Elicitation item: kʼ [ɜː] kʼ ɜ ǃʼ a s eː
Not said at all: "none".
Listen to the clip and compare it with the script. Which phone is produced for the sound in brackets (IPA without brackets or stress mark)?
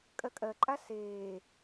ɜ